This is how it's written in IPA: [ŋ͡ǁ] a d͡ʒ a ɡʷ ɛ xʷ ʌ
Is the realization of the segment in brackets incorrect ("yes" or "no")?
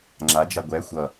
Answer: no